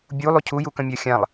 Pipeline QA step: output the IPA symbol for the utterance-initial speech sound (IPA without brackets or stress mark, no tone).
bʲ